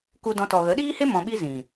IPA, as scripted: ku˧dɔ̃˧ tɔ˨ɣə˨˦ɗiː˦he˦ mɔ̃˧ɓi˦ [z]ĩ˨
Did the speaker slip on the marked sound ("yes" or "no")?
no